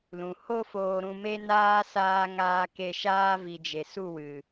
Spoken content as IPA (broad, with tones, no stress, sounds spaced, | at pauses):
l ũ˨ h o˦ f oː˧ ɾ ũ˧ m e˦ n aː˦ s aː˦ ŋ aː˧ k e˧ ʃ aː˦ v i˧ d͡ʒ e˨ s u˦˨ w ɨ˨